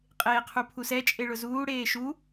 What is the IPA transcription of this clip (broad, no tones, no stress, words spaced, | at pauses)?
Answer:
qʼeːqʰupʰusɛ t͡ʃʼeɭʊzuː ɽeːʃu